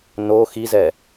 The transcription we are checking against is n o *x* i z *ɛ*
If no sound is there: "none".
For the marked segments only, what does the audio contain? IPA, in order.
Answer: x, ɛ

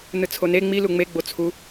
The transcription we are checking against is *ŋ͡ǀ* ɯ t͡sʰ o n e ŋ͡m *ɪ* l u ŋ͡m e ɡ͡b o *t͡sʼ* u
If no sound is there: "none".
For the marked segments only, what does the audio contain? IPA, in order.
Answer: n, i, t͡sʰ

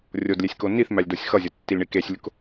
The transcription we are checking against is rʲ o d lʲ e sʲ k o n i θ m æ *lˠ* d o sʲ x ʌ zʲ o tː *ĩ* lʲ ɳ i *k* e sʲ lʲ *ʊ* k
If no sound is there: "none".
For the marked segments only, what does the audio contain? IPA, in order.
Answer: lʲ, i, k, ʊ

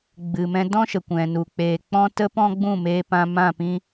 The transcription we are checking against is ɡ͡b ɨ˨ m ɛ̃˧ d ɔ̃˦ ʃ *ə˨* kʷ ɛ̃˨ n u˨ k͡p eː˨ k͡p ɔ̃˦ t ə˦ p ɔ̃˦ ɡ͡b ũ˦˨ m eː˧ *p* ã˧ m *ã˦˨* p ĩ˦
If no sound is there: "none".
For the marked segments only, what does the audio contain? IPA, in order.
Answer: ə˨, p, ã˦˨

